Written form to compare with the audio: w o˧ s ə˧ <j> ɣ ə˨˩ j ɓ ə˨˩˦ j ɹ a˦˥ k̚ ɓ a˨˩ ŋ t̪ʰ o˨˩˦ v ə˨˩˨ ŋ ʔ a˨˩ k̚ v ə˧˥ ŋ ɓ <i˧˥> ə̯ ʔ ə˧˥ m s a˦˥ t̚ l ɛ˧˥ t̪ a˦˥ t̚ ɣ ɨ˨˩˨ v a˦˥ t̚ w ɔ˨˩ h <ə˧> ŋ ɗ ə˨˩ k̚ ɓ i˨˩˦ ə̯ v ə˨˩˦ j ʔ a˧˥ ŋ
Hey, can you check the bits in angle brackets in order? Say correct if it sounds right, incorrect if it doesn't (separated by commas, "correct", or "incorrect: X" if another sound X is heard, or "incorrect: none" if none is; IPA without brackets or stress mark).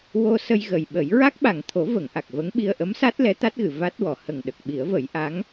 correct, incorrect: i˧, incorrect: ə˨˩